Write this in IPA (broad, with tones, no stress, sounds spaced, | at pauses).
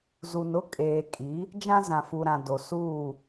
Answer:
z u˨ n ʊ˦ kʼ eː˨ kʼ i˨˦ | d͡ʒ ã˦ z ã˨ f u˨ ɾ ã˨ d o˨ s uː˦˨